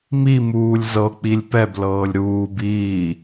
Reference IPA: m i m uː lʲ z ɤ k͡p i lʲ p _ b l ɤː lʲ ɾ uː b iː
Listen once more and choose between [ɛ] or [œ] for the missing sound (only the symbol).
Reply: ɛ